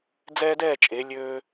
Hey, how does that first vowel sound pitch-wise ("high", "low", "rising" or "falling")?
high